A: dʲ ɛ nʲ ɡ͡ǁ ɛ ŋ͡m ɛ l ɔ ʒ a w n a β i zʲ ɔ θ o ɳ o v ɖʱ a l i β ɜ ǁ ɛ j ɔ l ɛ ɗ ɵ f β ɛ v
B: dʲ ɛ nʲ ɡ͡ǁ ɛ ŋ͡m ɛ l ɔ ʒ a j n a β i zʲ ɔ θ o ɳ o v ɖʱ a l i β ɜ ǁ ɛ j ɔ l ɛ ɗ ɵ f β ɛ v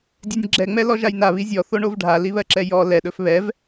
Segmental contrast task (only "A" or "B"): B